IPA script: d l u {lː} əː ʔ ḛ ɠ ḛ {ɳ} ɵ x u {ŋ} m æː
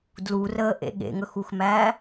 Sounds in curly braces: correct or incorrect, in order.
incorrect, incorrect, incorrect

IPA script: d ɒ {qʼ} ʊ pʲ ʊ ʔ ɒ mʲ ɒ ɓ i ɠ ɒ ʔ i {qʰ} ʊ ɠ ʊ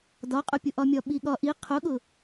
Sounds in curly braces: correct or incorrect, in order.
correct, correct

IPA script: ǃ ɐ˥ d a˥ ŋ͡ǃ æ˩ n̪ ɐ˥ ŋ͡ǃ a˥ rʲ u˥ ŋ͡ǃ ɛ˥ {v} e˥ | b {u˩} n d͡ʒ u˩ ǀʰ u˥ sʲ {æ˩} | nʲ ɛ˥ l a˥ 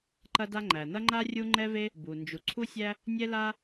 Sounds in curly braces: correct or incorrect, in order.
correct, correct, incorrect

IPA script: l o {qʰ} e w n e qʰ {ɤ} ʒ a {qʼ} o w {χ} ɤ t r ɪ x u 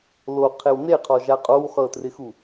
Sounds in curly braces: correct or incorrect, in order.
correct, incorrect, correct, correct

